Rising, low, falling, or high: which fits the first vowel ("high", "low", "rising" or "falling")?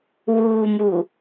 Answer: low